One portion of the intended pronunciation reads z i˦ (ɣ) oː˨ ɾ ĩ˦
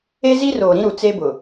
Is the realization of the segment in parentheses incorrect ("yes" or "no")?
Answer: yes